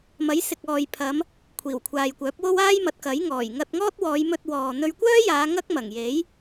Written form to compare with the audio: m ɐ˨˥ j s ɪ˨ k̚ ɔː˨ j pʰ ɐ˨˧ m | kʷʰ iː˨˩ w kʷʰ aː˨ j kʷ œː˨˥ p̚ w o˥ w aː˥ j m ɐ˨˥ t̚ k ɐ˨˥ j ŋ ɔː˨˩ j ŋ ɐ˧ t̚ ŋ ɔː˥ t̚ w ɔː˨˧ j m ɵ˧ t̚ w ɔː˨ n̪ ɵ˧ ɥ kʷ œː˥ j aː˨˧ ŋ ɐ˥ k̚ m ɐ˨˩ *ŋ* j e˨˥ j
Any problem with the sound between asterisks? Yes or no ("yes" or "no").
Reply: no